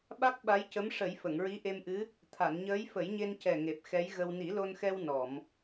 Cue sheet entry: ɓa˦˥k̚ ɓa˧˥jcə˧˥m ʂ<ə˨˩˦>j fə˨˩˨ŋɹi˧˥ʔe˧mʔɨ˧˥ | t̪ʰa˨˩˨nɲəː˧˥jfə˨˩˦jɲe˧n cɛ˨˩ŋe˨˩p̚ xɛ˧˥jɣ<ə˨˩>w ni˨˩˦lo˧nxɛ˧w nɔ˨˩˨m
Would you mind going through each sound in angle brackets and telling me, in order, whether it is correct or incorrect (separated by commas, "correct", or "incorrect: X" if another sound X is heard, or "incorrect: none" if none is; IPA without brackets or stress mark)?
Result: correct, incorrect: ə˧